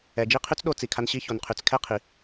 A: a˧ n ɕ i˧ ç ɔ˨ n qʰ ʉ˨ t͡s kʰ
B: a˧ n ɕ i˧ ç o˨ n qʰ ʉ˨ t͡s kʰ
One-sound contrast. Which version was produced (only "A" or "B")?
B